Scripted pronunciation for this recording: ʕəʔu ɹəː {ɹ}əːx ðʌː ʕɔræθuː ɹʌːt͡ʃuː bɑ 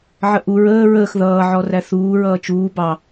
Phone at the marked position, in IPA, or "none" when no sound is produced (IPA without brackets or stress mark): ɹ